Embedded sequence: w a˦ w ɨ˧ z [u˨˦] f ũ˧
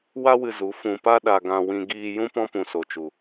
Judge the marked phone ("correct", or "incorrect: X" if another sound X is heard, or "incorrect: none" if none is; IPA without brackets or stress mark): correct